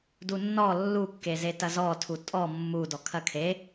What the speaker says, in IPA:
d u nː ɔ lː u kː e z e t ɐ z ɔ tʰ u tʼ ɔ mː u d ɔ kʰ ɐ kʰ e

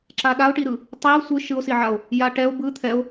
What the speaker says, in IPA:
ǁ a ɗ a o̯ ʈ i ɾ ɯ | tˤ i o̯ sʷ ɯ ʃ ɯ o̯ s i ʕ a o̯ | j a ʈ ɛ o̯ b ɯ t̪ʰ ɛ o̯

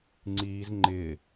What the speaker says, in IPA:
ŋ͡ǀ iː z ŋ͡ǃ ɪː

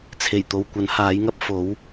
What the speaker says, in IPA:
t͡sʰ e˨˩ j t̪ o˨ w kʷ ɐ˨˥ n h aː˨˥ j ŋ ɐ˥ p̚ f o˨˥ w

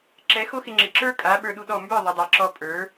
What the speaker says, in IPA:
ǁ ɛ˨˦ x o˦ x ɪ˧ ŋ͡ǁ ɪ˨ ǁ ə˞˦ kʼ a˨˦ ɓ ə˞˧ ɗ u˧ ɗ ɔ˦˨ m b ə˞˦˨ ðˤ ɪ˨ dˤ a˨ ǁ ɔ˧ pʼ ə˞˨˦

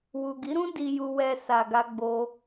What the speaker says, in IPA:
w u˨ ɡ i˨˦ ɾ ũ˦ d i˧ j u˧ w ɛ˧ s a˧ ɡ a˦ ɡ͡b o˦

